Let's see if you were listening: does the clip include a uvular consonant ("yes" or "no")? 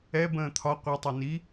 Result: yes